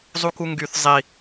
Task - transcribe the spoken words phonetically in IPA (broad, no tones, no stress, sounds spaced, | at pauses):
zˤ u k u ŋ ɡ y θ zˤ i